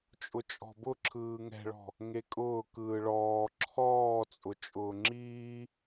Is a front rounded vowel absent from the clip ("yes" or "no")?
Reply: yes